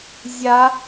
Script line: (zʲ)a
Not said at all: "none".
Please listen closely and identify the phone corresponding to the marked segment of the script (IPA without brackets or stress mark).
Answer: zʲ